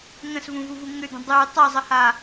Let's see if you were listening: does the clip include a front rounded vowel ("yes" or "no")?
yes